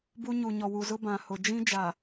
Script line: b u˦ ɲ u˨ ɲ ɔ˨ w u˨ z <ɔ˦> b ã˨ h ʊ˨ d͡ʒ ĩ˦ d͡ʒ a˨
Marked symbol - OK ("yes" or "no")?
no